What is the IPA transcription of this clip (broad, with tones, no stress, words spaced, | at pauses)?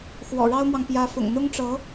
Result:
xwɔ̰˨˩ɻɑ˥ʊ̯mwɑ˨ŋ pjä˧˥fʊ̰˨˩ŋ n̪ʊ˥ŋʈ͡ʂɤ˧˥